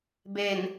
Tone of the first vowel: low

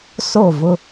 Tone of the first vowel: falling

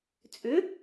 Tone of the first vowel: rising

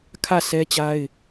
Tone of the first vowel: falling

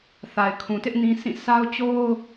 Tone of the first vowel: low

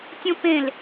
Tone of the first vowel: high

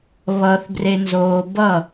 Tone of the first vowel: low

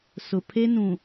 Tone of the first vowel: low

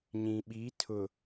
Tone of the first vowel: low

